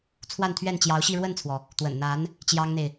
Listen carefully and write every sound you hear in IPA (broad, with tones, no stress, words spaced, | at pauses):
t͡sʰwa˥˧nt̪ʰɥɛ˥˩nt͡ɕjɑ˧˥ʊ̯ɕi˥˧ ɻwə˥˩nt͡sʰwɔ˩ | t̪wə̰˨˩nn̪a˧˥n | t͡ɕjɑ˥ŋn̪e˨ɪ̯